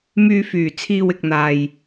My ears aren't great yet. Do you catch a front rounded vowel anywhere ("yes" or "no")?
yes